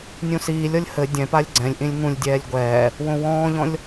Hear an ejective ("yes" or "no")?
no